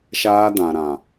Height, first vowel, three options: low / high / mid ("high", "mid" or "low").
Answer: low